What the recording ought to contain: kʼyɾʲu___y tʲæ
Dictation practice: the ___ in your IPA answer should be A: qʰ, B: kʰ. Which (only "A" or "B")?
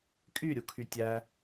B